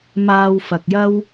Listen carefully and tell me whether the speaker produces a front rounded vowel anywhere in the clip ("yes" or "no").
no